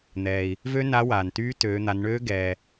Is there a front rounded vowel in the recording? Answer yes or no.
yes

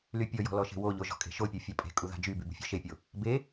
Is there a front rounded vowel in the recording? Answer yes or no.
yes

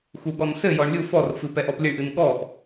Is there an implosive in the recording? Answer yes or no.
yes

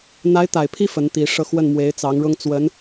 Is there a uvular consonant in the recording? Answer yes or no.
no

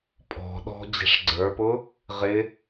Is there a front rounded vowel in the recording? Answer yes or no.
no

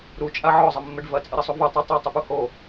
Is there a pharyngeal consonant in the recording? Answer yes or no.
yes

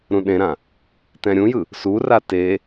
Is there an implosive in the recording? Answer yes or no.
yes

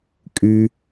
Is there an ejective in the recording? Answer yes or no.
yes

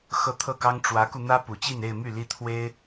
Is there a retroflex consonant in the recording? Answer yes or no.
yes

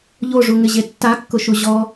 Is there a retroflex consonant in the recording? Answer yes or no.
yes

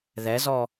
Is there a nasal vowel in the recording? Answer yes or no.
no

